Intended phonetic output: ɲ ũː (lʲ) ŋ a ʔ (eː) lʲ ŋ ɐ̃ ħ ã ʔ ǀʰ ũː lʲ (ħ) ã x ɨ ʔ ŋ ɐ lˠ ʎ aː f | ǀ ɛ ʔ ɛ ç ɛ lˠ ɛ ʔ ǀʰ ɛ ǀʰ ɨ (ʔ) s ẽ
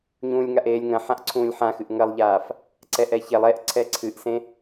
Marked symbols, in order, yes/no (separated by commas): yes, yes, yes, yes